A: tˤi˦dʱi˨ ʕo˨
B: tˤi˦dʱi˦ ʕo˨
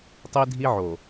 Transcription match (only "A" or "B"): B